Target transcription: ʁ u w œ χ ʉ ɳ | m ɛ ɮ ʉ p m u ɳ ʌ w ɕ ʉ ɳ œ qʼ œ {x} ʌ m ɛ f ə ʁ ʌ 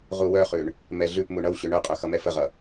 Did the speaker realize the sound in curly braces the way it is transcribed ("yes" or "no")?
yes